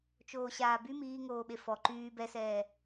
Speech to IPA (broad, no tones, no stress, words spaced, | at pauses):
t͡ʃoːɕaːby miːŋoːɓe fɔ ǃyː bɛsɛː